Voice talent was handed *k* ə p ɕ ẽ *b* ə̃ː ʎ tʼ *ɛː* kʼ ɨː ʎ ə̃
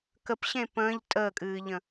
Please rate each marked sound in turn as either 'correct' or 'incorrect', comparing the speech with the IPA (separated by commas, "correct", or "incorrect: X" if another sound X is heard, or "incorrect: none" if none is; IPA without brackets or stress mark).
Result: correct, incorrect: p, incorrect: əː